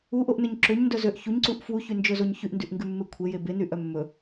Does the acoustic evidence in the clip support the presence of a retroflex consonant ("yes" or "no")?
no